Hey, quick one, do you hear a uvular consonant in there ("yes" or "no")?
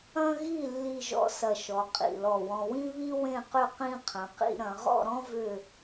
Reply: yes